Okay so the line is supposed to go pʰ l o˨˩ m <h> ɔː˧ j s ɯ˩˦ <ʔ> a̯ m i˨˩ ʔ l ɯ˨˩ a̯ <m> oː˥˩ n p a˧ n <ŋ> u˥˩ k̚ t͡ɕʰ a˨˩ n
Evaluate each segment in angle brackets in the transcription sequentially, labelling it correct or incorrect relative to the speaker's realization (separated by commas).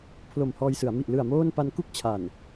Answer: correct, incorrect, correct, incorrect